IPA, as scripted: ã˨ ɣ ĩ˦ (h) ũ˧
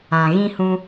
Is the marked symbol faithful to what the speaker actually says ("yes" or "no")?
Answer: yes